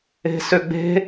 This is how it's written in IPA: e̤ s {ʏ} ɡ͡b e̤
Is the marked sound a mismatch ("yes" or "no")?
no